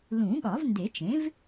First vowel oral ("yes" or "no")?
no